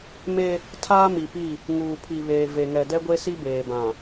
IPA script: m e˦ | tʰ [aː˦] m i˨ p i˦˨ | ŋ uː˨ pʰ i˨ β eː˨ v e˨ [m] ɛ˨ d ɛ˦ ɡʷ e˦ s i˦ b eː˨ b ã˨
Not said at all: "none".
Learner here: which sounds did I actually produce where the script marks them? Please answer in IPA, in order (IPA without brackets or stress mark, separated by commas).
aː˦, ŋ